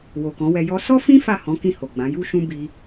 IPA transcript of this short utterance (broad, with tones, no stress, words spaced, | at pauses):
wo˨kɔ̃˨˦wɛ˧ jɔ˧ sɔ˦fĩ˦ fa˦˨ hɔ̃˨˦ kĩ˦˨ho˨ɡ͡bã˨˦ ju˦ʃũ˦ bi˧